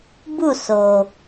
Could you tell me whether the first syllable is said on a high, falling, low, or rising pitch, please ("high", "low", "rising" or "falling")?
falling